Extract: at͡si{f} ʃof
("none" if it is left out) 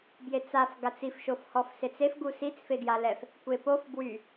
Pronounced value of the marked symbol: f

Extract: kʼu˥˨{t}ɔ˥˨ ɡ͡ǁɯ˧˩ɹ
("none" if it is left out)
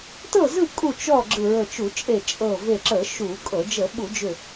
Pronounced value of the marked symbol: t͡ʃ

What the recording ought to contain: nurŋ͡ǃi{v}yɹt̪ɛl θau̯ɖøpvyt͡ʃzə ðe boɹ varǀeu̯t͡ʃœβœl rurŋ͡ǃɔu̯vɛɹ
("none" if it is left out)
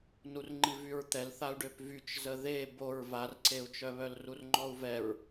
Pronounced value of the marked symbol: v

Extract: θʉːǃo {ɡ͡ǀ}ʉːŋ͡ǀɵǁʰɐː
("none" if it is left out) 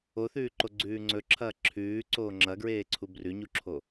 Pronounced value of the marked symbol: ɡ͡ǀ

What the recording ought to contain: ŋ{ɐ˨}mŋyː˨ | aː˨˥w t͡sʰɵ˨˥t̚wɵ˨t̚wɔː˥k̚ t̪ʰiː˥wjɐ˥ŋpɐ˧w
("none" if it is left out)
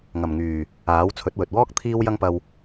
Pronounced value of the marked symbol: ɐ˨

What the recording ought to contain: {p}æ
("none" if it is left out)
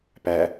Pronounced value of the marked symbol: p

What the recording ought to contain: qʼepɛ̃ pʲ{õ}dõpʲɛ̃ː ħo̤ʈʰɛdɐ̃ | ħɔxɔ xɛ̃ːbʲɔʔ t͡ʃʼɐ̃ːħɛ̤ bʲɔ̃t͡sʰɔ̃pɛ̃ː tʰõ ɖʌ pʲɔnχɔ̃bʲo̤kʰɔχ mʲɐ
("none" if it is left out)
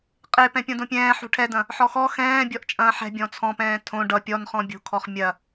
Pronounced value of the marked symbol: ɔ̃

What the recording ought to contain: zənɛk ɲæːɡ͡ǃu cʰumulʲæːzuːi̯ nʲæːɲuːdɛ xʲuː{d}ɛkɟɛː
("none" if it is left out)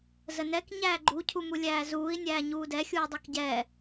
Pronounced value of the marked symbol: dˤ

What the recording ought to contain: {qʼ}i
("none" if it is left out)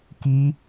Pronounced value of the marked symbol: k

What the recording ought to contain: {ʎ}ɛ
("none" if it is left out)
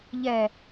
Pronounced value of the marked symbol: ʎ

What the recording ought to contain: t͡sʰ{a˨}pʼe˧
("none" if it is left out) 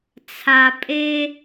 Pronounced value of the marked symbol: a˨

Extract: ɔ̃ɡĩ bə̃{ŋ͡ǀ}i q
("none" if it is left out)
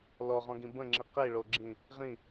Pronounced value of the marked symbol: ŋ͡ǁ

